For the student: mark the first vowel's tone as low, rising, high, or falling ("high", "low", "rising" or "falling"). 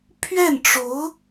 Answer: falling